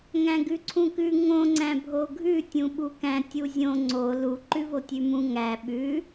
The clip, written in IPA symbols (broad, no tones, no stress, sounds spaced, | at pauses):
ŋ æ̃ ɡ ʉ ǀʰ ũ k ʉ ŋ õ ŋ͡ǀ æ̃ bʱ o ɡʱ ʉ tʲ ũ ɓ u k æ̃ tʲ u zʲ õ ŋ͡ǀ o l u ǃ ʉ v o tʲ ʉ m ũ ŋ æ ɓ ʉ